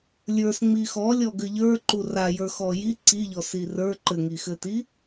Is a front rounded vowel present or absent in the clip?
absent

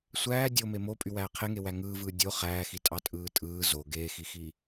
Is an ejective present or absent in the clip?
present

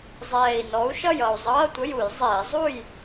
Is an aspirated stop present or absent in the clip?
absent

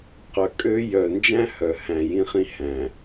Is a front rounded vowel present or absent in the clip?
present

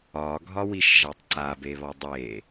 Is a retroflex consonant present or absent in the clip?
absent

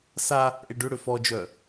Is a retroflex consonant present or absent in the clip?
present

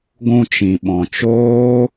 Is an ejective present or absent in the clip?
absent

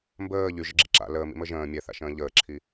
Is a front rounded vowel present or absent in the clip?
present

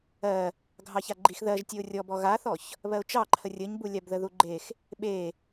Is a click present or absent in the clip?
present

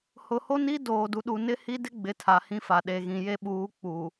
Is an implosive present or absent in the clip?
present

